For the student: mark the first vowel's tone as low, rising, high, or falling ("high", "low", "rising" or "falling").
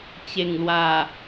low